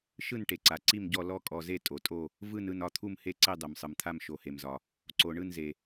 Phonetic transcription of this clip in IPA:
ʃɯ˦˨nʈe˩ǀa˩ ǀi˦˨mɟɔ˦˨ lɔ˦˨kʼɔ˩ze˦˨ tʼo˩tʼo˦˨ | vɯ˦˨nɯ˦˨nɒ˦˨ t̪ʰu˦˨mhe˦˨ǀe˦˨ dˤe˩msˤɯ˩mt̪ʰa˦˨m ʃo˩he˩mzɒ˩ | ǀo˩ ɳɯ˦˨nze˩

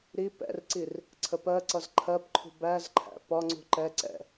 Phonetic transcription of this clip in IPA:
ɾi pɛ̰rǀir | ǀʰəpɜǀʌz ǃʰɜpǃʰṳ bæzǃʰæ̰ pɒŋ͡ǀṳ ǃɛ ǀɛ̰

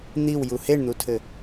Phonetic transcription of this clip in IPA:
n̪iwju heɳn̪utʰɘ

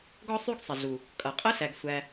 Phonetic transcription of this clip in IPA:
ɡɔ˦sˤy˦ɡsˤɛ˩ɮu˩ | kʼʌ˩qʼə˥ɬæ˨ɡ sʷæ˨

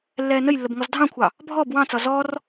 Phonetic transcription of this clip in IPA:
lːɛːnəjlːəb ŋɔzdʱɑ̃kʷʰɑ | bʱɔb wɑ̃t͡sɒ zɔr

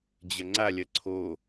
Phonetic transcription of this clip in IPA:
d͡ʑɐŋ͡ǀalʲɐ ǀʰo

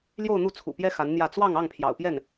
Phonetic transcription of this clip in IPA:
ljo˥˧ʊ̯n̪u˥˩t͡sʰṵ˨˩pjɛ˥ xa˧˥nn̪jä˥˧ t͡swɑ˥˧ŋ ɑ˥˩ŋ pʰjɑ̰˨˩ʊ̯pjɛ˥˩n

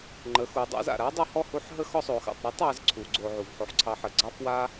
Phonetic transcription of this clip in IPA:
ŋ͡ǃə˩˧xu˩˧dˤa̰˧˥z a̰˩ ɾa˧˥dˤu˧ hɔ˥hu˧˥ħ ɦə˥xɔ˥sˤo˩˧xa̰˩˧tˤ ɾɤ˧˥tˤa˩˧z ǀʰu˩˧ɡ͡ǀo˧ ʕu˩vħo˧ħǀʰɑ˧˥ħə˩˧ ɡ͡ǀɑ˥fwa˥

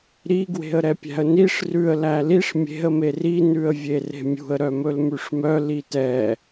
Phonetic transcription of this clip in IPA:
ɾi ɡwe̤ə̯ɾɛpʲæ̤ə̯niʂ rʉə̯ læliʂ mʲe̤ə̯ meri nʉə̯vʲere̤mʲṳə̯ ɾœmɵlmʉʂmœ litɛ

